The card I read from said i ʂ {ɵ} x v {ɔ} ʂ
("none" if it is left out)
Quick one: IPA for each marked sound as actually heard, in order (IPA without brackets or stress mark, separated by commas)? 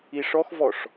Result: ɔ, ɔ